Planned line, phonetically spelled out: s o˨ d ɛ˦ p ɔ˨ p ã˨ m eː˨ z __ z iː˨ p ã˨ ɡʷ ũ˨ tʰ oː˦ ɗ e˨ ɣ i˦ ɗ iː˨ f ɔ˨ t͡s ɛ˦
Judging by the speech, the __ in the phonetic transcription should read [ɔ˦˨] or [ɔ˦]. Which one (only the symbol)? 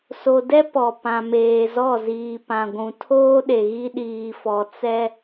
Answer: ɔ˦˨